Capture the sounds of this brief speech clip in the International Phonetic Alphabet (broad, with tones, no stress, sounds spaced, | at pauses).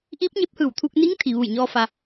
ʔ iː˧˥ p̚ ɲ e˧˥ p̚ h ɯː˧˩ w t̪ʰ u˧ k̚ n iː˧˥ ŋ t̪ʰ i˩ ʋ u˧˩ j ɲ ɔː˧ f a˧